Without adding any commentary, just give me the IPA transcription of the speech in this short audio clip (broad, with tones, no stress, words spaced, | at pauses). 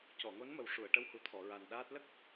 cɔ˨˩˨ŋo˧˥nmə˨˩w ʂu˨˩˨ə̯ʈə˧˥whu˨˩t̪ʰɔ˨˩˨ ɹa˨˩nɗaː˦˥t̚ lə˦˥k̚